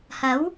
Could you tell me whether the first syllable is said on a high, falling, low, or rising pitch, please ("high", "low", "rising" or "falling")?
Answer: rising